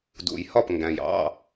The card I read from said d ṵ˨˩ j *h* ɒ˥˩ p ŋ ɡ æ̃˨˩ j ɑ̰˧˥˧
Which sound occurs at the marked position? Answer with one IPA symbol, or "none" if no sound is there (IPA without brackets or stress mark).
h